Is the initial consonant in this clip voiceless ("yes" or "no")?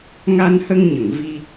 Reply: no